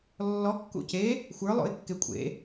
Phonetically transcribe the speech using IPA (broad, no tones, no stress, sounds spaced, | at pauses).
lː ɔ kː ṵ c e | xʷ ə˞ lˠ o̰ ɪ̯ kː e kʷʼ ḛ